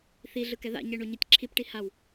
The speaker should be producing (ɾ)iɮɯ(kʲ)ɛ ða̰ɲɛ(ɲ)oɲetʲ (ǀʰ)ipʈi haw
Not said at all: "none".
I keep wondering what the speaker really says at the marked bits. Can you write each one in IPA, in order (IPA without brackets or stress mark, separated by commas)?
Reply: θ, k, ɳ, ǁʰ